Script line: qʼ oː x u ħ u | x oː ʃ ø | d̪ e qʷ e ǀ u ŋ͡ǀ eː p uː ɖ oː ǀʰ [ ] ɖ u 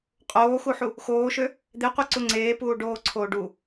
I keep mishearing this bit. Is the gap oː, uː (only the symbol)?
oː